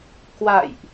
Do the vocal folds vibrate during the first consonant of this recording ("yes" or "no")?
no